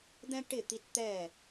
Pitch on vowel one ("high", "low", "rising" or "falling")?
high